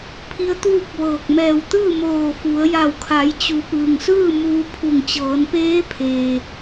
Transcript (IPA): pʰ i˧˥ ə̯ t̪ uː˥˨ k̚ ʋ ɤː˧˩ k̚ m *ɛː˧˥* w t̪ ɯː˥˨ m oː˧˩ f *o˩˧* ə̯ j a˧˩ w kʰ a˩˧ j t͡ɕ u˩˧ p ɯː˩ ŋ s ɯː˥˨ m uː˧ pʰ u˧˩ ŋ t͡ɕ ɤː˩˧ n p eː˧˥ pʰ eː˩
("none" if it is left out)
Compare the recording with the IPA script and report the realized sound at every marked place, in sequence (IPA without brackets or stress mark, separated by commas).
ɛː˧˩, u˩˧